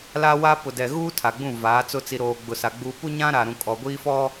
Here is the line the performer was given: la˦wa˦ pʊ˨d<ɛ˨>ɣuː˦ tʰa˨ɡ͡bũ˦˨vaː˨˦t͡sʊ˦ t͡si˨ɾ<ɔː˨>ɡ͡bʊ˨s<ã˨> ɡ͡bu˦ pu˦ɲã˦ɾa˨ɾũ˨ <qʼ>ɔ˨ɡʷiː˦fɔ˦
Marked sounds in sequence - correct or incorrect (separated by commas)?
correct, incorrect, incorrect, incorrect